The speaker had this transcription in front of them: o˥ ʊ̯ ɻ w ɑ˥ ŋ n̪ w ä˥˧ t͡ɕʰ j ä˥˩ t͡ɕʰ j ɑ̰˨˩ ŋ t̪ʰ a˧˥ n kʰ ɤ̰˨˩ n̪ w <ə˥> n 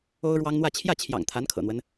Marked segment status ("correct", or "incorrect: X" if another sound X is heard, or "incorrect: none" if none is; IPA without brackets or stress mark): incorrect: ə˦